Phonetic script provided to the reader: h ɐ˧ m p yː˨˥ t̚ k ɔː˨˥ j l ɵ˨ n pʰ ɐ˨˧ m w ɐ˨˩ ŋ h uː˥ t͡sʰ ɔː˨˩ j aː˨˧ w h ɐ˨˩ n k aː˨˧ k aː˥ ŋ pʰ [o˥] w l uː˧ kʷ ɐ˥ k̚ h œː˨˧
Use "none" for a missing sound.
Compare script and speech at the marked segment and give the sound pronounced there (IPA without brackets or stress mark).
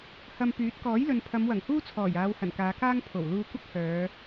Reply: o˨˩